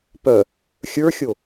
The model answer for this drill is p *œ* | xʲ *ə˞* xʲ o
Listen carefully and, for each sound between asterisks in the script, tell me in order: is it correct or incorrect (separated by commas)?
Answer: correct, correct